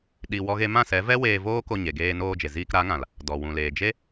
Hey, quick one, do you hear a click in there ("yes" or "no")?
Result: no